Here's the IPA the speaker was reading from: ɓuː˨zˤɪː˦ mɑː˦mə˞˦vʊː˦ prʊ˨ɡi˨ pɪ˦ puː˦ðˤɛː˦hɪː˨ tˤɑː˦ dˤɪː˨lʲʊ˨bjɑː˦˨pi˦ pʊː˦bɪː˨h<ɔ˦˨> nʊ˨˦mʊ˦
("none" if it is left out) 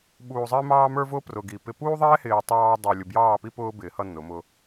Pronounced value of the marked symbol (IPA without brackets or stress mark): ʌ˦˨